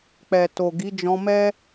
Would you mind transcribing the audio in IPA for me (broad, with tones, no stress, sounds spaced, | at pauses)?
k͡p ɛ˨ t o˨ ɡ i˨˦ d͡ʒ ɔ̃˧ m ɛ˦